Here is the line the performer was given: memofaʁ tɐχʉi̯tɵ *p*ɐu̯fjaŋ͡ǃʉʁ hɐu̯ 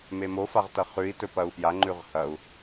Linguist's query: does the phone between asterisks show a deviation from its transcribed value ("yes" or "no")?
no